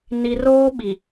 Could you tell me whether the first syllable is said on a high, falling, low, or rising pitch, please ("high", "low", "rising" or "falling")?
low